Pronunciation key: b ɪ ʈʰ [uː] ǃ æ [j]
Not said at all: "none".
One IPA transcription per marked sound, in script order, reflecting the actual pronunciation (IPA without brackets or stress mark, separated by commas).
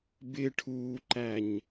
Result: uː, ɲ